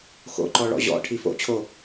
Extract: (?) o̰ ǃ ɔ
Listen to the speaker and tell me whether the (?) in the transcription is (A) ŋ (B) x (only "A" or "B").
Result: B